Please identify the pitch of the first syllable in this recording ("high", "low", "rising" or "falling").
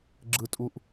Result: low